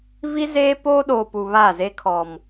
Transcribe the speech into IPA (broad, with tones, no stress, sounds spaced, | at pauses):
v i˦ z eː˦ p oː˦ ɗ oː˨ p u˨ β a˦˨ z e˦ kʰ ɔ˨ m